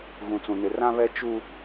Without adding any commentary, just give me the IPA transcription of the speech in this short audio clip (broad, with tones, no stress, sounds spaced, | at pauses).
ɣ ũ˨ t͡s ũ˨ n ɪ˨ r ã˦ β ɛ˦ t͡ʃ u˦